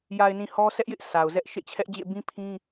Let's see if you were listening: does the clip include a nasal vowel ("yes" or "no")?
yes